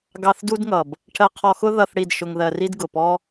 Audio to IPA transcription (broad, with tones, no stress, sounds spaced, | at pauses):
ɡ ɑ˧ θ d u˦ d ŋ ʌ˨ b | ʈʰ ɜ˧ qʰ ɔ˧ x ʊ˦ ð ʌ˧ θ ɽ i˦˨ d ʃ ʊ˧ ŋ ð ɜ˧ r i˦ d ɡ ʊ˨ p ɔ˦